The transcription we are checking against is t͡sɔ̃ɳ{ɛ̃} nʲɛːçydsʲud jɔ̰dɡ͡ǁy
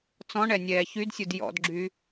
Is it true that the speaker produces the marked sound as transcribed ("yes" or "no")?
no